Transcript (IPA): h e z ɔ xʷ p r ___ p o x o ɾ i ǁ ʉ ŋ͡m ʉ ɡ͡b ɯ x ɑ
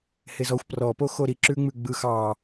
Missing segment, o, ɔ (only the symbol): ɔ